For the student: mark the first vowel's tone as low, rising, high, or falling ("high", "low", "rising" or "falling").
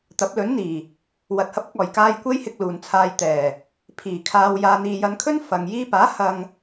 rising